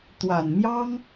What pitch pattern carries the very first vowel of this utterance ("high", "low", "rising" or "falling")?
low